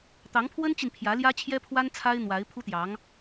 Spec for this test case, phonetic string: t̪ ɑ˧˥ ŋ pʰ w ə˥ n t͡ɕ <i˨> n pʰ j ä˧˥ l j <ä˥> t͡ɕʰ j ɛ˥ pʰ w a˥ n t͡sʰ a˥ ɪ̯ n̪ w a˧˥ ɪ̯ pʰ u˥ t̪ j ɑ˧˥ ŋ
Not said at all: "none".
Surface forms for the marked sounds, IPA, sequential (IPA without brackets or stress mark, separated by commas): i˨, ä˥